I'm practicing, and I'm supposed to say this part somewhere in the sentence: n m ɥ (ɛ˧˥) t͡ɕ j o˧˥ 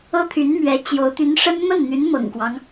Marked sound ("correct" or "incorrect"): correct